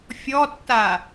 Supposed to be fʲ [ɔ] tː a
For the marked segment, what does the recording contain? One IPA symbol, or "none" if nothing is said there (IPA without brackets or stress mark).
ɔ